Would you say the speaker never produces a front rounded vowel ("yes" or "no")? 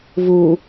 yes